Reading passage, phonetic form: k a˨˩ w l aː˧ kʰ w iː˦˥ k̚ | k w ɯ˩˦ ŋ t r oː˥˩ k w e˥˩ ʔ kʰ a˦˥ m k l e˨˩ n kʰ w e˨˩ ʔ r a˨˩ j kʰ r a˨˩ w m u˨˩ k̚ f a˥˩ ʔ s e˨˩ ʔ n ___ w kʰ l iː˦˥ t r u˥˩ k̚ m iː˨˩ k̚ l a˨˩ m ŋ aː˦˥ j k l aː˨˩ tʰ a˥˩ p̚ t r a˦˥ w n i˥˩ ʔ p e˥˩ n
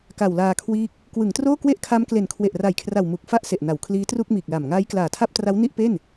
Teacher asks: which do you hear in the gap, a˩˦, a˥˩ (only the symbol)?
a˩˦